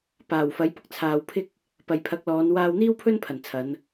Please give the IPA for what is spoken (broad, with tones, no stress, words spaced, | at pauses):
paː˨˩wfɐ˨˥jpʊ˥k̚ t͡sʰaː˨wpʰɪ˥k̚ | pɐ˨jpʰɐ˨˥k̚lɔː˨˧n waː˧wn̪iː˥wpʰɵ˥n pʰɐ˨˩nt͡sʰɐ˨˧n